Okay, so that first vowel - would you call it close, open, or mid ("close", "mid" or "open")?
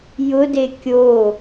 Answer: close